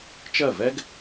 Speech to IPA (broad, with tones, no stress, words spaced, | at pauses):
t͡ʃɜ˥˩vɛ˥ɡ